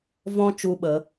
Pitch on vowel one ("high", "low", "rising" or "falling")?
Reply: high